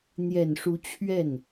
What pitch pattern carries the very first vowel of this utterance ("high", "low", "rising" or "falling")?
low